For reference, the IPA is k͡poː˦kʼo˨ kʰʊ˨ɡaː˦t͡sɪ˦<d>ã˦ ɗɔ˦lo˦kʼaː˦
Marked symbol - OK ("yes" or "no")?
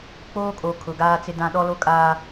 yes